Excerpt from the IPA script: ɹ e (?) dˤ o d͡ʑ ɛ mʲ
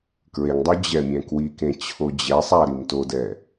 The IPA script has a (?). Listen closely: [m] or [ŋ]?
ŋ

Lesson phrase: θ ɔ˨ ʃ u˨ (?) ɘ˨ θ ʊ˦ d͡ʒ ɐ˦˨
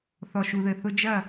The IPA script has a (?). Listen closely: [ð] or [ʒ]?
ð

